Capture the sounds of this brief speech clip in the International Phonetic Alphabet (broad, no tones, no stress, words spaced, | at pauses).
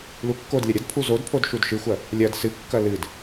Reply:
lukːodlʲɐ ɾʲɐdpʰu zod pʰodʃudʃɨxʷɐ | lʲɐd sɨkːɐ lɨd